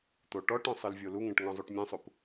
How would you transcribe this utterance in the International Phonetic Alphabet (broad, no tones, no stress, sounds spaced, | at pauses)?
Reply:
t̪ o ʈ ɔ ʈ õ sˤ ɨ l vʲ o l u ŋ ẽ ʈ ŋ ɔ̃ zˤ u ʈ mʲ ẽ sˤ u p